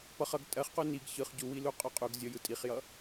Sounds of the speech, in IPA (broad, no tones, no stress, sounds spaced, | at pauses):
p ʌ χ ʌ ɡ tʼ ɜ χ q u n i ɡ ç ɯ χ ɟ u w i l u qʼ ɔ qʼ u ɡ zʲ ɔ j ɯ tʼ i χ j ʌ